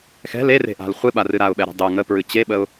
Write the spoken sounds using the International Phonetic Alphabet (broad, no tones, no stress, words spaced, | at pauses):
xɛ̤l ere̤ʔa̤l χʷɨɓarɨ ɾaʊ̯ɓɛɾɛ̤ dˤɯ ŋəpɹɨ t͡ɕeɓəʊ̯